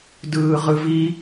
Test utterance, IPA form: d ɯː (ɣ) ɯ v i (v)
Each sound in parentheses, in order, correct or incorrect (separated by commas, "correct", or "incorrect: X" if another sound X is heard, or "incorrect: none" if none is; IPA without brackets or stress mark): incorrect: ʁ, incorrect: none